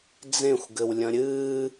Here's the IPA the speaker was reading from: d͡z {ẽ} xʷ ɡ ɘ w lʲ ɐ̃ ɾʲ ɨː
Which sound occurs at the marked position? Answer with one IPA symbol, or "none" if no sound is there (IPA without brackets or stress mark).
ẽ